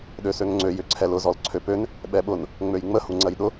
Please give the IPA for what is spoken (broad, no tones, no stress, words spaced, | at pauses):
ɗøsøŋŋ͡ǀø jʏǀʰɛlʊ zɔlǀʰøpøn | ɓɛɓʊn | ŋ͡møjŋ͡mə huŋ͡ǀɜjɗʊ